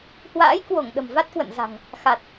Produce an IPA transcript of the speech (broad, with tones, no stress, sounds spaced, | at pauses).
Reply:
h w a̰ː˧˥ j k w o˧˩ ŋ ɗ ə̤˨˩ m v a˦˥ t̚ k w ə̰˧˨ n z a̤˨˩ ŋ | x a˨˩ t̚